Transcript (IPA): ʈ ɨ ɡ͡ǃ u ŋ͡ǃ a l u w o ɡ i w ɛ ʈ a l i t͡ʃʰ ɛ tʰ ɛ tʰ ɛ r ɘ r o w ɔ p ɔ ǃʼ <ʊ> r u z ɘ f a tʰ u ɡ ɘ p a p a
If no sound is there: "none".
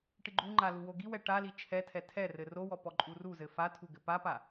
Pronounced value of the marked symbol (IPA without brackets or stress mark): u